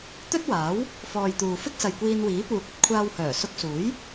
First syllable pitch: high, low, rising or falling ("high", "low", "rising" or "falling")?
high